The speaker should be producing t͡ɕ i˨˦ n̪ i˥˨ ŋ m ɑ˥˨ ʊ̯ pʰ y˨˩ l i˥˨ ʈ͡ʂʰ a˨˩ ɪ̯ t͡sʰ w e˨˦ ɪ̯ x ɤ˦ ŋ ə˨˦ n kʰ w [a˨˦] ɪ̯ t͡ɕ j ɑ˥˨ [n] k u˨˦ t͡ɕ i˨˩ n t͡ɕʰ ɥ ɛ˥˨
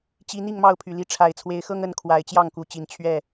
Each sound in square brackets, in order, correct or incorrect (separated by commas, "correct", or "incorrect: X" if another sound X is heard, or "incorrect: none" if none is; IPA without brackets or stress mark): correct, incorrect: ŋ